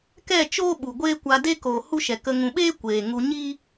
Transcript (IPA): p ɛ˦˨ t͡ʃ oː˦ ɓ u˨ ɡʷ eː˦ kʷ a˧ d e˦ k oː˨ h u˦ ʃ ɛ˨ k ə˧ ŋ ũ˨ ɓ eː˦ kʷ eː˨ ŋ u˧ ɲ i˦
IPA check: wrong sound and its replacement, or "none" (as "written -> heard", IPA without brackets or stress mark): p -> k